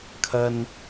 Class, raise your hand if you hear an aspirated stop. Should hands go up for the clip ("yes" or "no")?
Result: yes